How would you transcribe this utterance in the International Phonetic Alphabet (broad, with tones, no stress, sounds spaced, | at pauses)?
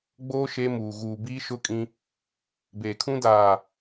ɡ͡b oː˦ ʃ e˦ m uː˨ ɣ uː˨ b iː˦ ʃ ʊ˦ kʼ ĩ˦ | b eː˨ kʰ ũ˦ d aː˨